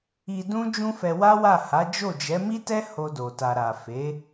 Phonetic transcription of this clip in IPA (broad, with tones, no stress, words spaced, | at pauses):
i˧dũ˦ d͡ʒũ˦fɛ˧ wa˦wa˦˨ ha˨˦d͡ʒo˦˨d͡ʒɛ˨˦ mi˦tɛ˦ ho˧do˨ta˨ɾa˨ fe˨˦